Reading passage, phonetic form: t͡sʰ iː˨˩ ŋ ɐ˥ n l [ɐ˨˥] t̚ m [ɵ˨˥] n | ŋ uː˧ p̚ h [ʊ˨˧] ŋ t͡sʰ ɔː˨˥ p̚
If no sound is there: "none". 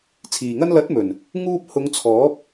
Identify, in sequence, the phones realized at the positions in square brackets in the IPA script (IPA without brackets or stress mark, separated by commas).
ɐ˨˥, ɵ˨˩, ʊ˨˧